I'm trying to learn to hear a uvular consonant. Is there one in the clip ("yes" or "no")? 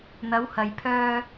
no